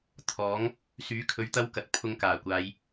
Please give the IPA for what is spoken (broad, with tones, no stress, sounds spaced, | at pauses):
t̪ʰ ɔː˨˥ ŋ | s yː˨˥ kʰ ɵ˨˧ ɥ t̪ ɐ˥ w k ɐ˨ t̚ pʰ ʊ˧ ŋ k aː˨˩ kʷ aː˨˧ j